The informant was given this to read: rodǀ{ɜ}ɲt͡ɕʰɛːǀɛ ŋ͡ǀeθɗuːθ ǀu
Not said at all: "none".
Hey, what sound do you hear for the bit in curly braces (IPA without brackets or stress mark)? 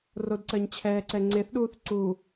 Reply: ɜ